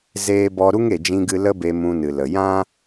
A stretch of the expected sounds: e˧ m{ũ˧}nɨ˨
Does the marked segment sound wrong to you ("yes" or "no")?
no